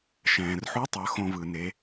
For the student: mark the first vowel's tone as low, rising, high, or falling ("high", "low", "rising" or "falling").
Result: low